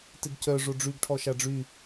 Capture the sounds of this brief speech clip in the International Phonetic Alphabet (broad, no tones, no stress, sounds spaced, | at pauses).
t ɪ ɡ c œ ʐ o ɖ͡ʐ y ɡ ʈʰ ɔ ʃ a ɖ͡ʐ y